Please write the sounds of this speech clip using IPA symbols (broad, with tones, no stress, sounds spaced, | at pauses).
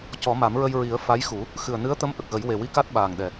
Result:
c ɔ˨˩˦ m a˨˩˦ m ɹ ə˧ j ɹ i˨˩˦ ə̯ f a˧˥ j x u˨˩˦ | x ɨ˨˩ ə̯ n ɨ˧˥ ə̯ t̪ ə˧˥ m ʔ ə˨˩ k̚ ɣ ə˨˩˦ j w e˨˩ w i˧ k a˦˥ t̚ ɓ aː˨˩ ŋ ɗ ɛ˨˩